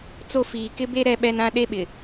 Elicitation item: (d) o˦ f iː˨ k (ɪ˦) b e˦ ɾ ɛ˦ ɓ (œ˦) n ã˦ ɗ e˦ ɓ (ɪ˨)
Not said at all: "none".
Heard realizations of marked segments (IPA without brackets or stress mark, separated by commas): t͡s, ɪ˦, ɛ˦, ɪ˨